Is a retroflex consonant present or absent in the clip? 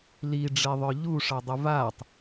present